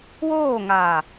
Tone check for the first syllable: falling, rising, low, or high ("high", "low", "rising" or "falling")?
falling